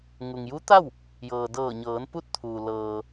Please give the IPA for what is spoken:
ŋ u˩ ŋ j u˧˥ t̪ a˥˨ w | j ɤː˩ d ɤː˧˩ ɲ ɤː˩˧ n p u˥˨ t̚ t̪ʰ uː˩ l ɤː˩

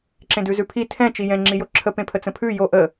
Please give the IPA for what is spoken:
ǁ ẽ d ʉ z ʉ pʰ i tʰ ɛ̃ t͡ʃ i j ɛ̃ ŋ͡ǁ i j o ǁʰ ə p ẽ pʰ ə t͡s ə̃ pʰ ʉ j o ʔ ə

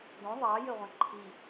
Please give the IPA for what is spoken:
d õ ðˤ ɑ j ɘ ʁʷ ɛ̃ ǃʰ i

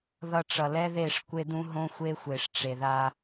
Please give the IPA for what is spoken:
ð ʌ˨ ʈ͡ʂ ʌ˨ l ɛ˦ ð e˦˨ ʂ kʷ e˦ d ũ˦ ɦ õ˦ xʷ e˦ xʷ e˨ ʂ ʈ͡ʂ e˨ ð a˦

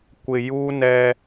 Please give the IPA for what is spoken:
kʷ ɪ˨ j u˦ n ɛ˦

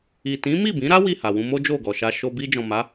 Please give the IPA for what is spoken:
i˨ t ĩ˨˦ m i˦˨ b ĩ˨˦ ɾ a˦ w i˦˨ h a˨ w ũ˧ m o˦ d͡ʒ o˦˨ ɡ ɔ˨ ʃ a˧ ʃ o˧ b i˧ d͡ʒ ɔ̃˨ m a˨˦

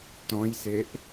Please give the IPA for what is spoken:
t ɔ̃ j s e ʔ

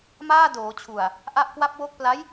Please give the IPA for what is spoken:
m aː˥˩ d oː˩˦ t͡ɕʰ u˨˩ a̯ | ʔ a˥˩ ʔ k w a˥˩ p̚ w o˥˩ k̚ p l a˦˥ j

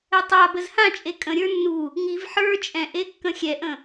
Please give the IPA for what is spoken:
ɛ tˤ a b ə z h ã t͡ʃʼ e kʼ ə̃ ɾʲ ə˞ nː u | ŋ i v ħ ə˞ t͡ʃʼ ɛ̃ ʔ e kː ə̃ xʲ ɛ ʔ ə̃

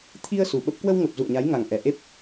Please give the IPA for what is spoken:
t̪ʰ i˧ ə̯ s u˨˩ ɓ ə˦˥ p̚ k w ə˧ w ŋ ə˨˩ p̚ z ṵ˧˨ ə̯ ɲ a˨˦ j ŋ a˨˩ ŋ ʔ ɛ˨˩ ʔ e˦˥ p̚

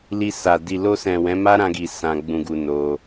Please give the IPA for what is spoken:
l i˧ s a˨ d i˨ l o˧ s ɛ̃˨ w ɛ̃˨˦ m a˦ ɾ ã˧ ɡ i˨ s ã˧ ɡ͡b ũ˧ ɡ u˧ n o˧

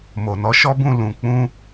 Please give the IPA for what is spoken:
m o˨ n ɔ˨˦ ʃ ɔ˦ b ũ˦˨ l ũ˨ k͡p ũ˧

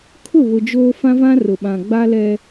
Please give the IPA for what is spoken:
kʰ ʊ˦˨ β ʊ˨ d͡ʒ oː˦ f ã˦ v ã˦ r ʊ˨ ɓ ã˨ ɡ͡b a˦ l ɛ˦

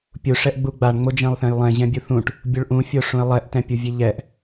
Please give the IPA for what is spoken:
pʲ u ʂ ɛ ʔ ɡ͡b u ɡ͡b a ɳ ŋ͡m o d͡ʒ ɛ̃ lˠ θ ɛ̃ j lˠ ɛ̃ ʑ ɛ̃ bʲ u θ ũ ʈ | bʲ u ɭ ʔ ũ fʲ o ʂ ũ e̯ lˠ ɛ ʔ t ɛ̃ pʲ u vʲ e ʎ ɛ ʔ

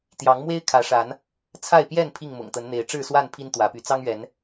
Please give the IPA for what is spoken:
t̪ j ɑ˨˦ ŋ m w e˦ ɪ̯ kʰ ä˨˦ ʂ a˨˦ n | t͡sʰ a˥˨ ɪ̯ p j ɛ˥˨ n pʰ i˥˨ ŋ m ʊ̰˨˩ ŋ t̪ ə˨˦ n n̪ e˨˦ ɪ̯ ʈ͡ʂ ɻ̩˥˨ s w a˥˨ n pʰ i˦ n t̪ w ä˨˦ p y˨˦ t͡s ɑ˦ ŋ ɥ ɛ˨˦ n

